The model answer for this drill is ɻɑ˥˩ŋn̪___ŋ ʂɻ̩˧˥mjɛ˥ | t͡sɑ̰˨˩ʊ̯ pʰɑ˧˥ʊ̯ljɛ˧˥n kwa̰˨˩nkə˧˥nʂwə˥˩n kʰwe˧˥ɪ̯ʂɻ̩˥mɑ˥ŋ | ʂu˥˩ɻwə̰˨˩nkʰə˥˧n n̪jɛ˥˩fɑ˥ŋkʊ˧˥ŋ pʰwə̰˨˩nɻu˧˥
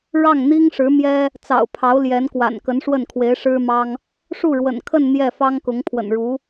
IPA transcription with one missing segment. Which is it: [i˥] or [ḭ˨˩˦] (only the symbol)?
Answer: i˥